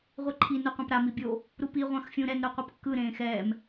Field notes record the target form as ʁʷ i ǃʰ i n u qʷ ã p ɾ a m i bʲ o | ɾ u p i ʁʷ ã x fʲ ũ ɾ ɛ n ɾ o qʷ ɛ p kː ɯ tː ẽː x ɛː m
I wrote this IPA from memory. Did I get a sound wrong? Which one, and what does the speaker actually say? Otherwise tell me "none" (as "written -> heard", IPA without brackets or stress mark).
tː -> ɾ